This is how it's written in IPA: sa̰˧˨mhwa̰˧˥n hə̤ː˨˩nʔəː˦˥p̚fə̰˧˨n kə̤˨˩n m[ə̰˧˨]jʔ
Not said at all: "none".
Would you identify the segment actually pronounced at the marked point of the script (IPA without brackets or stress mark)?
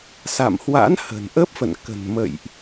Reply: ə̰˧˨